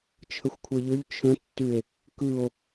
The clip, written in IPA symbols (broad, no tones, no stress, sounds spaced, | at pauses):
t͡ʃʰ ə xʷ kʷʰ e ʎ ʏ ʎ t͡ʃʰ ə̃ tː y e̯ | k ɯ o̯